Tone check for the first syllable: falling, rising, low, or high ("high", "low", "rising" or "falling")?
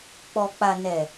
low